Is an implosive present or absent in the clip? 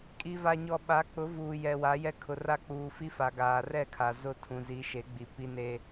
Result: present